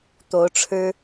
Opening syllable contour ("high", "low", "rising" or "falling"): rising